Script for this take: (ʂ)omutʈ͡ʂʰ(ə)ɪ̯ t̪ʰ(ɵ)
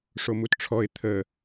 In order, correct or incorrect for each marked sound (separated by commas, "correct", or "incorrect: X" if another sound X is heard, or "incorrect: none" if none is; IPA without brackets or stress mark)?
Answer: correct, incorrect: ɔ, incorrect: ə